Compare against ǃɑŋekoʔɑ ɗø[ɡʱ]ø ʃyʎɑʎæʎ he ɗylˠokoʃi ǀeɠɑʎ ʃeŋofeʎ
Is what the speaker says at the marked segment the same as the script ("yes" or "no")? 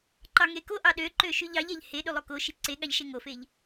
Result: no